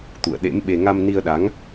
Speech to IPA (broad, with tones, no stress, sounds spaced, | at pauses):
t̪ ṵ˧˨ ə̯ ɗ ḛ˧˥ m ɓ e˧ ŋ a˧ m n i˧ ə̯ ɗ a˨˦ ŋ